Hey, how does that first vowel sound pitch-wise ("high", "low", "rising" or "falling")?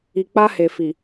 low